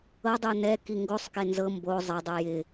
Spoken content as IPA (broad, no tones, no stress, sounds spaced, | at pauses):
ɤ dˤ u n ɛ k i ŋ ɡ o sˤ k e n z ɤ m b o zˤ ɪ dˤ ɨ j ɪ